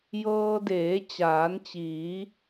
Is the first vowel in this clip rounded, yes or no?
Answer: no